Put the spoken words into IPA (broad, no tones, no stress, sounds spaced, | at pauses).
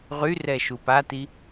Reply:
ʁ y r ɛ ʃ u p a t i